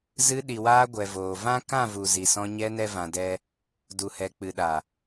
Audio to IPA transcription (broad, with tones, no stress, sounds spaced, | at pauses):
z ɨ˧ ɗ i˨ w aː˧ ɡʷ ɛ˨ v oː˨ v ã˦ k ã˦˨ v u˨ z i˨ s ɔ̃˧ ɲ ɛ˧ n ɛ˦ v ã˧ d ɛ˦ | d u˨ h ɛ˨ k͡p ɨ˨ ɗ a˨